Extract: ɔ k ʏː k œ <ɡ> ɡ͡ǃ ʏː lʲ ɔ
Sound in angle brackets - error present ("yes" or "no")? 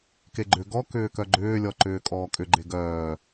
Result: yes